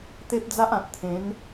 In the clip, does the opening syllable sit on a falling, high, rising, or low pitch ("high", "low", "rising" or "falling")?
high